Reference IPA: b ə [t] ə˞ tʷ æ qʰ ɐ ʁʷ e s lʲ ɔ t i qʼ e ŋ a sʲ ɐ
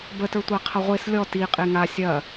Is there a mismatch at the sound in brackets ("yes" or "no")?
no